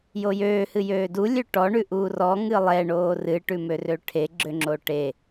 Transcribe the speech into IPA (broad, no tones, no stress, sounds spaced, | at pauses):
j o j øː h ɨ j øː d u lʲ ø ʈ ɔ ɳ ʉ ʔ uː r ɔ ŋ ɨ lˠ ɛ ɳ oː r ɨ ʈ ʉ m ø r ø ʈʰ e ɡ͡ǁ ø ŋ͡ǁ o ʈ e